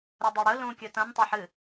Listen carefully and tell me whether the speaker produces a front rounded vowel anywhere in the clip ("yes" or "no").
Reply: no